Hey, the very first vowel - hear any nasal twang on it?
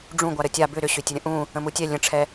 yes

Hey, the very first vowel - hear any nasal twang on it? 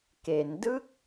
no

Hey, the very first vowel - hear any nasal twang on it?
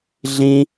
yes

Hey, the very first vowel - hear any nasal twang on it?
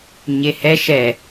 no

